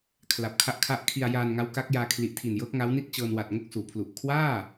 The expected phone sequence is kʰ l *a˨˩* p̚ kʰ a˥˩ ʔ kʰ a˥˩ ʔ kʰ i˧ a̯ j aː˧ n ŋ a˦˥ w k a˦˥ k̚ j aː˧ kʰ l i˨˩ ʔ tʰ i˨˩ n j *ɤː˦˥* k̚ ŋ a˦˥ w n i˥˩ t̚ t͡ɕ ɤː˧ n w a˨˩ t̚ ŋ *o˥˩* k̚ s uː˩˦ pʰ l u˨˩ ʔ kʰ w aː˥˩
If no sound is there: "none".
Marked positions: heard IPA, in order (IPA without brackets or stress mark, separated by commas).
a˨˩, ɤː˦˥, o˥˩